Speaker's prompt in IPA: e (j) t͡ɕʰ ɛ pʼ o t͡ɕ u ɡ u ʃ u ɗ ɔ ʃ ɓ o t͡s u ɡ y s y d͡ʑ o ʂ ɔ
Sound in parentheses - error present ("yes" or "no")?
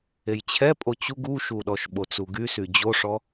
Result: no